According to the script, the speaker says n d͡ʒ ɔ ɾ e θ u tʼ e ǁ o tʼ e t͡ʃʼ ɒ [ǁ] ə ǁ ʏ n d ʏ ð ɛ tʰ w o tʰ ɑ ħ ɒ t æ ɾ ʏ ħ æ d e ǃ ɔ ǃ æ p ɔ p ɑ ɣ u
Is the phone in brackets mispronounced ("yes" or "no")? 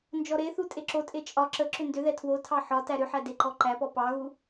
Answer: no